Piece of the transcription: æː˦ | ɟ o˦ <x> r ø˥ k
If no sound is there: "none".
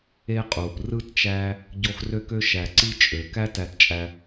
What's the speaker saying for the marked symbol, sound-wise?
x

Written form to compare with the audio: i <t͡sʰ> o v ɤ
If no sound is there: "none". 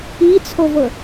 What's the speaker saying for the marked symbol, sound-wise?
t͡sʰ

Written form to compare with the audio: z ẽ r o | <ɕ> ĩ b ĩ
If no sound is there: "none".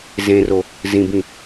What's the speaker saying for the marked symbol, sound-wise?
z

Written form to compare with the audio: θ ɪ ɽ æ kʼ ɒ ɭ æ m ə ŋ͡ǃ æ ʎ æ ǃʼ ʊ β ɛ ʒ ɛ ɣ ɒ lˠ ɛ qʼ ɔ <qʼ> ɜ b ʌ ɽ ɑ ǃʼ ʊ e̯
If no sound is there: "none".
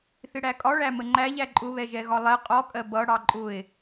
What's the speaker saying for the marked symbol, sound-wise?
kʼ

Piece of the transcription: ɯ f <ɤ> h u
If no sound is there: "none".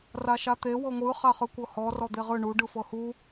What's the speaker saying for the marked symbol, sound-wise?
ɤ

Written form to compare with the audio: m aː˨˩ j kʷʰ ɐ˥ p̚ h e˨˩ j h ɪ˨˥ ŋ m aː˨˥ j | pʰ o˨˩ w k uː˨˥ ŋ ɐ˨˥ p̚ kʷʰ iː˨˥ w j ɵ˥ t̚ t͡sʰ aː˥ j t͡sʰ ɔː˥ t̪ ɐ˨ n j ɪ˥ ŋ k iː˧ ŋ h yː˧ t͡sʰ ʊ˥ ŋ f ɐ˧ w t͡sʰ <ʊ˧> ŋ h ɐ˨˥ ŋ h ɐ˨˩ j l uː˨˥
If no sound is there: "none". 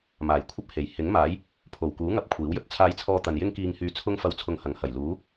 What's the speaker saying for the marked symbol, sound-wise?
ʊ˧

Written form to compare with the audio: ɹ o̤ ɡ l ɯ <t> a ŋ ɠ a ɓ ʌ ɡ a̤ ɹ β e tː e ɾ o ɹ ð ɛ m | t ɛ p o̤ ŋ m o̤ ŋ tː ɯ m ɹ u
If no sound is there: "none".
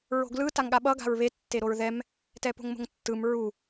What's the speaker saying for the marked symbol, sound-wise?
t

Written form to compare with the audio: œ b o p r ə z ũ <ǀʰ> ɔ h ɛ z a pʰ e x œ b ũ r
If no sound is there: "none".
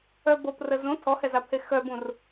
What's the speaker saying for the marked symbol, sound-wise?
tʰ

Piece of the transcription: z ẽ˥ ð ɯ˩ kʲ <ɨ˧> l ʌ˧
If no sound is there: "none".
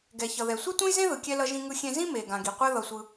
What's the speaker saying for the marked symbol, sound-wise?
ɛ˧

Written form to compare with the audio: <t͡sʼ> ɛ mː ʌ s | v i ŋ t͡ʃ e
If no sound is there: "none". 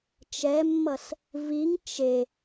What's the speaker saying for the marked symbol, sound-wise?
t͡ʃ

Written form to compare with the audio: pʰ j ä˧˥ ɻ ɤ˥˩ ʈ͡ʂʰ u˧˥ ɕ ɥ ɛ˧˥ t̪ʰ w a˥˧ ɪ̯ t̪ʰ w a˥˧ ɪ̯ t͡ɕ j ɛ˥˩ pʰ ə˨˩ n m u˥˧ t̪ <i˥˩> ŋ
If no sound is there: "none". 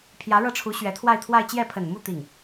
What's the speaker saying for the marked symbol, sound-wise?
i˥˩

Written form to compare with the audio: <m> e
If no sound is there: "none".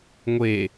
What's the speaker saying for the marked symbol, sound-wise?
ŋʷ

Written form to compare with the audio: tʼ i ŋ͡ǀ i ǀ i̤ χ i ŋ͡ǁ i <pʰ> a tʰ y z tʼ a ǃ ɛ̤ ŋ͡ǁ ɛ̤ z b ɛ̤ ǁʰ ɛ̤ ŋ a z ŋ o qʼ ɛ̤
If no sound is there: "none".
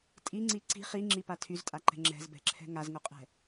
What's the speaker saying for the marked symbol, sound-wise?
p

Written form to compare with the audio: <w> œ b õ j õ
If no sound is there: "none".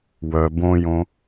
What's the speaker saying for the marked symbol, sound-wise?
w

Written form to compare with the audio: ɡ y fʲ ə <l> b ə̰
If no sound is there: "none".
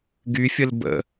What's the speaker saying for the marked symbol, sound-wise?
l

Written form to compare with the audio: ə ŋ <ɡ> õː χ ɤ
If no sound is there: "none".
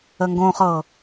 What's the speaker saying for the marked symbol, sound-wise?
ɡ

